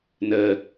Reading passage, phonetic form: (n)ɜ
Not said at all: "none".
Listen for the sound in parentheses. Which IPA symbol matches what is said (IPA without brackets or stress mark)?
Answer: n